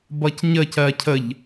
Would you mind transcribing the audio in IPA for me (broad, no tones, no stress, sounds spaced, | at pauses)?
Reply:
b ʌ c ɲ ə c ɜ cʰ ə ʎ